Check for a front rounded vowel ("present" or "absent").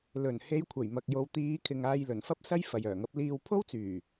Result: present